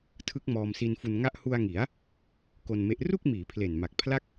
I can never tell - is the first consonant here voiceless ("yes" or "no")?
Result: yes